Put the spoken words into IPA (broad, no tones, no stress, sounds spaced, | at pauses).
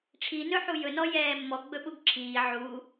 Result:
ʈ͡ʂʰ i n ɵ ħ u j ɵ n ɔ j ɛː mː ɔ ɡ͡b ɵ ɓ u ɡ ǁʰ iː ʕ u